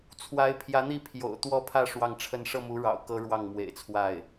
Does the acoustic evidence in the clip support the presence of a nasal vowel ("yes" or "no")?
no